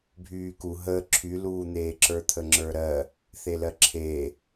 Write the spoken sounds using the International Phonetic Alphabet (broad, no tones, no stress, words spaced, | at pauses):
bʱyːku ɦəː ǁʰyluːn̪eː ǁə˞t̪ʰəŋ͡ǁə˞ɾɜ | θelɜǁʰeː